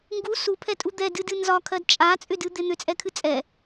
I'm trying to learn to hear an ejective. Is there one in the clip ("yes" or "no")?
yes